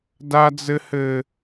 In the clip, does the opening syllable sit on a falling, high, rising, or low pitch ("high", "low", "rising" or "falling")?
high